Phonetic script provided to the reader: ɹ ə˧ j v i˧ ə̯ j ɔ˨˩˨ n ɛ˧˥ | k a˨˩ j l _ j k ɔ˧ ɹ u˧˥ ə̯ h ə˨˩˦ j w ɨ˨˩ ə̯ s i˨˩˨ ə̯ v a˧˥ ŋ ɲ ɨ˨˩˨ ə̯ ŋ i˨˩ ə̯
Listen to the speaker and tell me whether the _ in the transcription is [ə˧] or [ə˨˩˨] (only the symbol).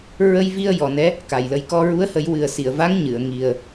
ə˧